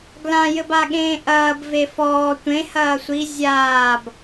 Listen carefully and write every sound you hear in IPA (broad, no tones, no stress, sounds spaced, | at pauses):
ɡ l ã j ɘ b a ɠ ẽː ʔ ɐː b v e f ɔː tʷ ẽ h ɐː sʷ i zʲ aː b